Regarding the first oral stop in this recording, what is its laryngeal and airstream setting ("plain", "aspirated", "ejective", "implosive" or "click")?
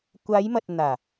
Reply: plain